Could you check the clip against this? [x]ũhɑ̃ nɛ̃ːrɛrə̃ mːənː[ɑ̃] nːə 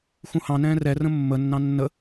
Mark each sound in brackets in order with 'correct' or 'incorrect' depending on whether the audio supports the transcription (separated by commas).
correct, correct